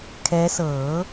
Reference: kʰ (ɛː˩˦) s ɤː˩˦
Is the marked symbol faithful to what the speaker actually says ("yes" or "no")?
no